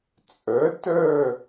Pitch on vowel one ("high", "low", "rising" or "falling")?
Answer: rising